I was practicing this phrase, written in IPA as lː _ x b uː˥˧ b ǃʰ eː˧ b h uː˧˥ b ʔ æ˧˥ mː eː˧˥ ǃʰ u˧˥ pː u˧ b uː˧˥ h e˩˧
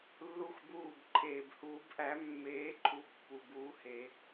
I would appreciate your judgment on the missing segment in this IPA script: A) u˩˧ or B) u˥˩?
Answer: B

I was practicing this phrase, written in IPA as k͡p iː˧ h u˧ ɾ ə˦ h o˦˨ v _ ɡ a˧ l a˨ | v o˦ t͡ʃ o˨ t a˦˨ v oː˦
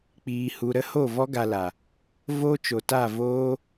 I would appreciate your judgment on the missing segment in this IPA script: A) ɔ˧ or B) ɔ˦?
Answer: B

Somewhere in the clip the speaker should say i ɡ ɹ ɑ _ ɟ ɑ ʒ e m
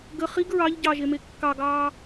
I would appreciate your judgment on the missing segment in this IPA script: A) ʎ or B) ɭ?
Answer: A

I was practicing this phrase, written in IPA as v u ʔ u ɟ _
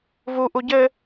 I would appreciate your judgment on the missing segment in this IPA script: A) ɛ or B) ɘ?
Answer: B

